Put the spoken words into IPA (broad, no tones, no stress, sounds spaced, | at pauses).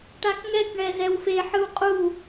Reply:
ʈ a k ŋ ɛ k ɳ ɛ z ɛ w f e ħ ɯ w qʼ u